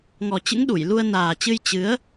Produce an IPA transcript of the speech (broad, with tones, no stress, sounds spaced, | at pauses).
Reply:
ŋ ɔ˨˩ t͡ɕ ɨ̰˧˥ ŋ ɗ u˧˩ j l u˧ ə̯ n aː˨˩ t͡ɕ ɨ˧ j t͡ɕ ɨ˨˦ ə̯